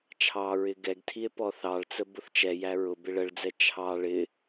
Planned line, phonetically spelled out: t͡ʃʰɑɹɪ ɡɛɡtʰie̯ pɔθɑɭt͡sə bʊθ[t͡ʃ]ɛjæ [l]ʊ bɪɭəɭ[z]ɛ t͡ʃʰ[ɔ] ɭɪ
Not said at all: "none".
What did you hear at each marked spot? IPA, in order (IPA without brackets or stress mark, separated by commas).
t͡ʃ, ɹ, d͡z, ɑ